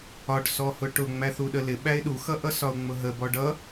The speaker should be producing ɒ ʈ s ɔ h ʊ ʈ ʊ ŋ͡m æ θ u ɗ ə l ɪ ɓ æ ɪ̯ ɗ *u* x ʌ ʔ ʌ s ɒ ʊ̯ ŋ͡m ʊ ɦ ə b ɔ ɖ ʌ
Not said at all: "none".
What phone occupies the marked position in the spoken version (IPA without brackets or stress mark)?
u